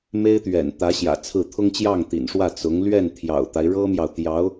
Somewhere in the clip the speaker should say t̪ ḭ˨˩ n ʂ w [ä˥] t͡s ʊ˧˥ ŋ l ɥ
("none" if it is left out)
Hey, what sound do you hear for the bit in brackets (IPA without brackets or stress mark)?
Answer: ä˥˩